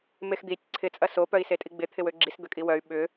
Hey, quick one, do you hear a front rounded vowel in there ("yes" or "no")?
yes